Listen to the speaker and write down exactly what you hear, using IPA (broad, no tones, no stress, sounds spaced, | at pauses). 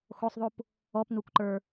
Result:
x o sˤ ðˤ u p | ɔ p n u kʷ ǃ ə˞